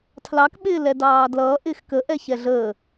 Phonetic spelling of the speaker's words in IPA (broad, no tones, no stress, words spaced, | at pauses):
tʰlɑk ɓɪːlɛdɑːdlʌː ʔɪːxkə ʔɛçɛɮəː